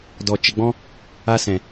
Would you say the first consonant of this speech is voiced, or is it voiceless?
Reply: voiced